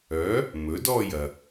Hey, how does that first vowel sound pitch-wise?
rising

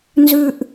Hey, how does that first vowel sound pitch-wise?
high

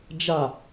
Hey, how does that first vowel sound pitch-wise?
falling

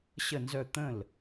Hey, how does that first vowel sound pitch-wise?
falling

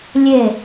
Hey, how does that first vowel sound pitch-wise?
falling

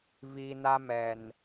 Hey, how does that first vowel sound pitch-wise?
low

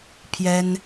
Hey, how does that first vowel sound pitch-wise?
high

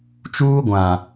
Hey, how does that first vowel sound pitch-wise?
high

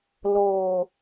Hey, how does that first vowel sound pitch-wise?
low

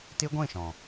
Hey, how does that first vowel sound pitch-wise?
high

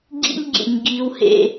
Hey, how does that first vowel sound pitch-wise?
high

